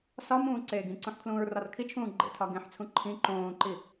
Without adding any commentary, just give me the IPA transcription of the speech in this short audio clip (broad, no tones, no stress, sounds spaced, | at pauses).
s ɒ m ũː ǀ eː ɡ ĩ ǀ ũ ħ kʰ l ũː ɹ r ɒ r kʰ i t͡ʃʰ ũː ɡ͡ǃ ḛ tʰ ɒ ɡ ẽ ħ t͡sʰ ũ ǃʰ ĩ ǃ õː ǃ i